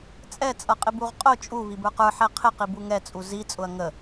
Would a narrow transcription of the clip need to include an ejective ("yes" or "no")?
yes